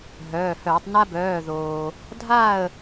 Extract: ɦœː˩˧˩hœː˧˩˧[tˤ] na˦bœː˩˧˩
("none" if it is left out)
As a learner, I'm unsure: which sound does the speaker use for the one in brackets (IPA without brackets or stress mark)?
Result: tˤ